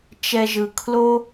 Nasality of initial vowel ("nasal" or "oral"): oral